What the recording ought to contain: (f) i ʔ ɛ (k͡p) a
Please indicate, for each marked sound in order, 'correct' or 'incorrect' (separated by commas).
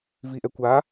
incorrect, incorrect